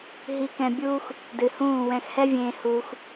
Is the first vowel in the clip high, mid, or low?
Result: high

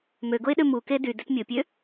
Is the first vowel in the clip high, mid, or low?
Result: mid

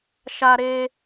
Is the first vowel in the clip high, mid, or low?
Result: low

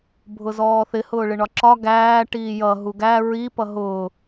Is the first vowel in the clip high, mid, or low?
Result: high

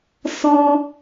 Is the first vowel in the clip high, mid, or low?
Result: mid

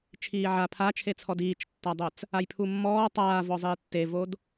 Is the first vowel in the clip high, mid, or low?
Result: high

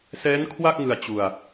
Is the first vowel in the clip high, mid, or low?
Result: mid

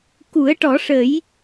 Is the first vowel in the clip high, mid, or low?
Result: high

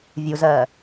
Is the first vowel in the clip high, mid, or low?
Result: high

